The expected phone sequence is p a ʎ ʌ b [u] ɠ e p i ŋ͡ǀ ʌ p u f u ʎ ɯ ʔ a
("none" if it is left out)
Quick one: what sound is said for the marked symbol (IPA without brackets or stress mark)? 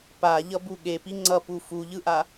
u